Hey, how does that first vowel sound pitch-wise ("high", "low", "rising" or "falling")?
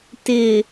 low